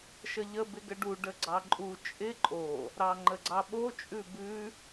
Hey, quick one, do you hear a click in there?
yes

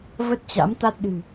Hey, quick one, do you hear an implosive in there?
yes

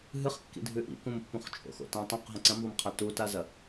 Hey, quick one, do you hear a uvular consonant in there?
yes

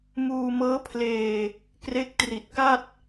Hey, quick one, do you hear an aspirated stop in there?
yes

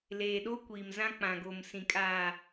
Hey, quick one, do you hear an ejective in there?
yes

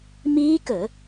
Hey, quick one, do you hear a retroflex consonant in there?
no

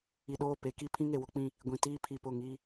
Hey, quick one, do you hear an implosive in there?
yes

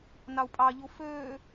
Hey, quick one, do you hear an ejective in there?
yes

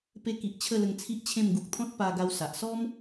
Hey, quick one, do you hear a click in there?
no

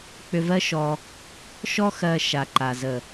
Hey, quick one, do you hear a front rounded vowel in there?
yes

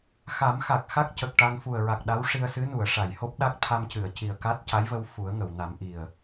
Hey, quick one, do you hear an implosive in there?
yes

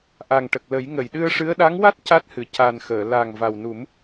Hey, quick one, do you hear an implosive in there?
yes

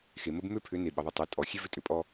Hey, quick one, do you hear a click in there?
no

